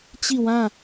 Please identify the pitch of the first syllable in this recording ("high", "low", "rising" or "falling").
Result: falling